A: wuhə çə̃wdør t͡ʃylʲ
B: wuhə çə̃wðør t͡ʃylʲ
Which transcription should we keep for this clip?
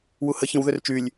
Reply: B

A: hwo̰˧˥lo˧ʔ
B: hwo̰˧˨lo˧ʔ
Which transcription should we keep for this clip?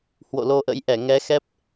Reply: B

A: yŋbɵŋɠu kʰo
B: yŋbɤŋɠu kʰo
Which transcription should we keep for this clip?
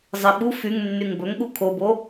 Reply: A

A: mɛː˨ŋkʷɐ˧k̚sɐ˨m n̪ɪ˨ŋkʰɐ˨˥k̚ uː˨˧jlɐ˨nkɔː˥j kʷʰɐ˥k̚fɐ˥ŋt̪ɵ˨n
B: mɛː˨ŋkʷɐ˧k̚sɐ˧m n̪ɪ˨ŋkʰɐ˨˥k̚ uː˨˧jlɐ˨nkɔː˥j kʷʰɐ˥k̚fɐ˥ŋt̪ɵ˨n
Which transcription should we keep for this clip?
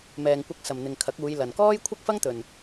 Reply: A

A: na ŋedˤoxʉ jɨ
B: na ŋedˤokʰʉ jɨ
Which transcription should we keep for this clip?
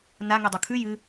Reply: B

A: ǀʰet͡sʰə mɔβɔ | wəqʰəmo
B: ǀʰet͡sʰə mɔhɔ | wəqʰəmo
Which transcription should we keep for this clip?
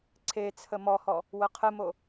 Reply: B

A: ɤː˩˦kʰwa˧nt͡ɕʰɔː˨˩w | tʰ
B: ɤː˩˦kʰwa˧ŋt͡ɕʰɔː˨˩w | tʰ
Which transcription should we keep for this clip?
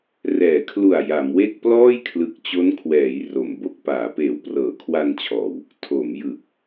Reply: A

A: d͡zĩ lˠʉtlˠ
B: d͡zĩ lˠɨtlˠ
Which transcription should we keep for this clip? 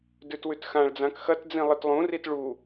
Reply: B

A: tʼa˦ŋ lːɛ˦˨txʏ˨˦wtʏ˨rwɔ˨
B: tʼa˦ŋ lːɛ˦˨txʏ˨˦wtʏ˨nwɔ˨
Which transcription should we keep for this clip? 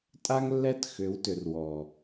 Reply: A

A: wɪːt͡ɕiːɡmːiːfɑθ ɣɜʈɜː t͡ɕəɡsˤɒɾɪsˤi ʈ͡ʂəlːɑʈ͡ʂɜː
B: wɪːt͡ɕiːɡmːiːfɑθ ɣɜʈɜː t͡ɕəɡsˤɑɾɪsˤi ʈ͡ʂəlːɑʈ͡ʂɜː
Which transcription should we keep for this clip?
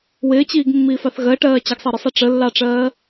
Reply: B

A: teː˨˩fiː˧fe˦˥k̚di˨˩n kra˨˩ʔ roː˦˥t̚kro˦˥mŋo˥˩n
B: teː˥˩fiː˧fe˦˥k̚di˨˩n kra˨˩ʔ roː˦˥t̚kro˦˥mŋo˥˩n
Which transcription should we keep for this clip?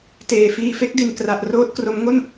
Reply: A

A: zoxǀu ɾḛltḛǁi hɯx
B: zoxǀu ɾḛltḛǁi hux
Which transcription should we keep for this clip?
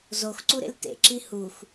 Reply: B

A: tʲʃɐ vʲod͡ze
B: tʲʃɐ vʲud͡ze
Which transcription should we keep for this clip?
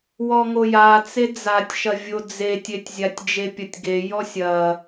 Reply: A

